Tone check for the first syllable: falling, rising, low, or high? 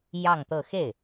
falling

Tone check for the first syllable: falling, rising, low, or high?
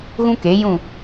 high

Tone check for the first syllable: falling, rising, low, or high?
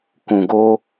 low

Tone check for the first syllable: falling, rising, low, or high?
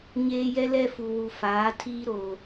high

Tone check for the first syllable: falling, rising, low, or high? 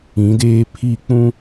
rising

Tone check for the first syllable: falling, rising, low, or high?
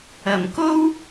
low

